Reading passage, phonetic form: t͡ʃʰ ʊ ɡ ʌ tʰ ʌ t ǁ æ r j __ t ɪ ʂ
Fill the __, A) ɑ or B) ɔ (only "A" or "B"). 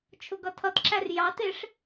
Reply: A